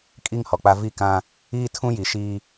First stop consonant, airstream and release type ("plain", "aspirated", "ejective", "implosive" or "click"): ejective